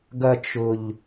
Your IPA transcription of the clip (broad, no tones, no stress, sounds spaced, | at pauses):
ɡ ɐ t͡ʃ ʊ ʎ